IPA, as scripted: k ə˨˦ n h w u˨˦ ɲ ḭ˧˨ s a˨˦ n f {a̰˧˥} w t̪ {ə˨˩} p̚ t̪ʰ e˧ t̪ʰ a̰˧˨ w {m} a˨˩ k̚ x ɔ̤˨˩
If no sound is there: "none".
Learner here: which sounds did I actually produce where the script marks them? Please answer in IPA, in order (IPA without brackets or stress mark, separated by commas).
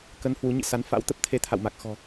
a̰˧˥, ə˦˥, m